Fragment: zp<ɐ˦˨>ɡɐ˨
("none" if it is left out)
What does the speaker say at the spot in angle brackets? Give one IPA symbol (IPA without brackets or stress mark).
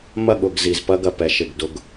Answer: ɐ˦